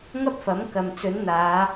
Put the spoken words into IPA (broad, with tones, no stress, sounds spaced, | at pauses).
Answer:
ŋ ɐ˥ p̚ f ɐ˨˥ m k ɐ˨ m t͡s ɵ˨˥ n n̪ aː˨˧